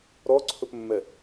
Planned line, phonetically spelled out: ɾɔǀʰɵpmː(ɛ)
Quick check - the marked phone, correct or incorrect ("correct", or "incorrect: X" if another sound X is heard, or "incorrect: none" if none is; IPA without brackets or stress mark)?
correct